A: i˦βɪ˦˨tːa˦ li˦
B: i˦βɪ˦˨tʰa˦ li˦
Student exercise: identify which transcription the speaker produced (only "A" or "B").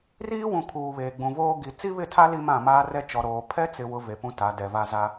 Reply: B